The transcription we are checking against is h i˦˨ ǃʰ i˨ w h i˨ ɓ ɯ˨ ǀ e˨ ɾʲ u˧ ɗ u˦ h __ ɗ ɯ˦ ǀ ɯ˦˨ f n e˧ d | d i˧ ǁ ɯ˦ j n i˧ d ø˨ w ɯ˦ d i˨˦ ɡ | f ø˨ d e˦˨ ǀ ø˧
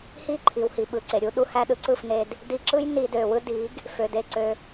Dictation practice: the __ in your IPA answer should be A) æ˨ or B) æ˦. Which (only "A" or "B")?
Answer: B